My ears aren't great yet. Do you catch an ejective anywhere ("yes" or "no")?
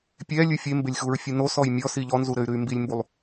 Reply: no